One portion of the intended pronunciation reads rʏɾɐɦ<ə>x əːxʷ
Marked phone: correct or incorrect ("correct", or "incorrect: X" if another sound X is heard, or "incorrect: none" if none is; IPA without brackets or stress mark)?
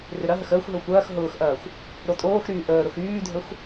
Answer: correct